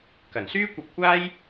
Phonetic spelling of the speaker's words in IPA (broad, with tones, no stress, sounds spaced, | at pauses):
k ɐ˨˩ n s yː˥ kʷ ɐ˧ p̚ kʷ aː˥ j